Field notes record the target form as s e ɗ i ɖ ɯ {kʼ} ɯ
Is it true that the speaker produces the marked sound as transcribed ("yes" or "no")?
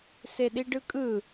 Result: yes